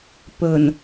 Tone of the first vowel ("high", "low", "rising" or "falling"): low